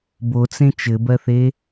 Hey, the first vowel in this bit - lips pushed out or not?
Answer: yes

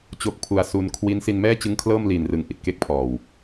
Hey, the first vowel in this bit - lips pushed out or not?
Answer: yes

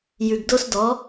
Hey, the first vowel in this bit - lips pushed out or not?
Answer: yes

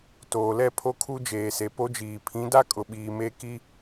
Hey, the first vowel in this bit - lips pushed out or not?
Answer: yes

